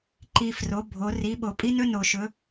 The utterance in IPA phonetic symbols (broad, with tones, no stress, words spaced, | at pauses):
ǃi˨ fro˨˦bʱo˨˦ ri˨˦ɓo˨ pʼi˥nɵ˥ no˨ʃɵ˨˦